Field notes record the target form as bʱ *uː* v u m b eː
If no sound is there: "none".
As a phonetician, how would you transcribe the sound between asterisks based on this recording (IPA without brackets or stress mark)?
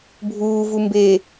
uː